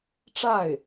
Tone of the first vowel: falling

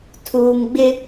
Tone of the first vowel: low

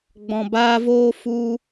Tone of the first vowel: low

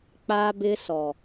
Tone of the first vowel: high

